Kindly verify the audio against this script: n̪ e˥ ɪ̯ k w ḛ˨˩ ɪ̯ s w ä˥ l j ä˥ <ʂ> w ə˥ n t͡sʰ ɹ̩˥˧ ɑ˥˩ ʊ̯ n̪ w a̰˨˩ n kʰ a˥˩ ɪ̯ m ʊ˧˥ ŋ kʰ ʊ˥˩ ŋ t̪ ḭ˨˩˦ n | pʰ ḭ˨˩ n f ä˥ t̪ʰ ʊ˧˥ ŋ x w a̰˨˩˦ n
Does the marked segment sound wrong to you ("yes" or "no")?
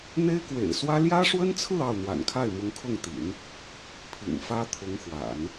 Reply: no